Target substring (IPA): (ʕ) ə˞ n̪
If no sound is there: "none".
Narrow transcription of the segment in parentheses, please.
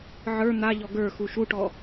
ʕ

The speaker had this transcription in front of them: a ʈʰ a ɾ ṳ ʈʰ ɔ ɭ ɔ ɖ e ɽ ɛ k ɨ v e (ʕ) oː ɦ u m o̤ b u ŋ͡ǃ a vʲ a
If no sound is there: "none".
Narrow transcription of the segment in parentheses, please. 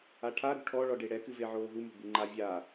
ʕ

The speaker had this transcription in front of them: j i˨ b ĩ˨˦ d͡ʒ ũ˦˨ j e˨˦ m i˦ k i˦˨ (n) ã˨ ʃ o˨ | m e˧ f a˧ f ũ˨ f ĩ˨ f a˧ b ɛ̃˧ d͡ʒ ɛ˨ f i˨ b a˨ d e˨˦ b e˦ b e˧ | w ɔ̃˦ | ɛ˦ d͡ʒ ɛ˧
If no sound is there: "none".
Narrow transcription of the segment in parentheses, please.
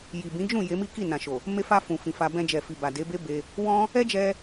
n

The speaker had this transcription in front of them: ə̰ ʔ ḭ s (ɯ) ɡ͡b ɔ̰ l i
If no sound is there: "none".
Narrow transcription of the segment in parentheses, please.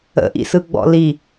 ɯ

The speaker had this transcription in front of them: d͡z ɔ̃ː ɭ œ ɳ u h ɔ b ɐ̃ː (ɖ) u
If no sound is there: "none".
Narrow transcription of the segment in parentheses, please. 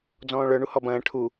ʈʰ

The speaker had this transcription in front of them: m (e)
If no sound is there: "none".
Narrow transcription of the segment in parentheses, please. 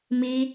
i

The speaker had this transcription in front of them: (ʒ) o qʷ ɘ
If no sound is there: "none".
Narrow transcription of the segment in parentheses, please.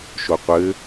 ʃ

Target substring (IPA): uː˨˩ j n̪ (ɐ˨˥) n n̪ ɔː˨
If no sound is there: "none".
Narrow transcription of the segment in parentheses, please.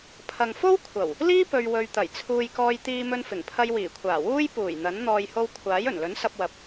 ɐ˨˥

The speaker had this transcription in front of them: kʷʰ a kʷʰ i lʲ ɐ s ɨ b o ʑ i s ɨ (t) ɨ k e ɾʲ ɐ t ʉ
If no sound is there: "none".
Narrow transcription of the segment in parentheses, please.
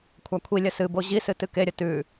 t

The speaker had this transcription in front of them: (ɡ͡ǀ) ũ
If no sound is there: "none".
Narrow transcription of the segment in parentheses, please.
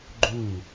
ɡ͡ǃ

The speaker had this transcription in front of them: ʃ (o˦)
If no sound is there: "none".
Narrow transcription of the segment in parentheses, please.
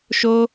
o˦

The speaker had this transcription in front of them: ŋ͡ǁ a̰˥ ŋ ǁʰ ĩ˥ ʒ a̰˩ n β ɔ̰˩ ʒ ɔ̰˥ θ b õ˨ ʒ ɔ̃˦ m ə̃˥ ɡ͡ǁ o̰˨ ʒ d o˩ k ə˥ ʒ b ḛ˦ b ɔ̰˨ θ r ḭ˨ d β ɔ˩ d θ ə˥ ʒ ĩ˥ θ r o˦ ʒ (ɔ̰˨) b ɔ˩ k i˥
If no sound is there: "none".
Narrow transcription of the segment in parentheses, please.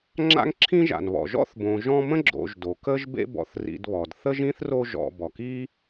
ɔ̰˨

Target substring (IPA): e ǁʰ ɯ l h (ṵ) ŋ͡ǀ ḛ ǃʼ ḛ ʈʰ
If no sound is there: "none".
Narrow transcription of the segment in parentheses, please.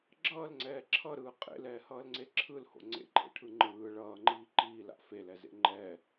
o̰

